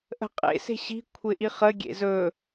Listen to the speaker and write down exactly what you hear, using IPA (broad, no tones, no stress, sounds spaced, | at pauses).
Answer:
ʔ ə̤ qʼ ḛ s e̤ ɕ i̤ kʷʰ ɪ ʔ i χ ə ɡʲ ḛ z ɵ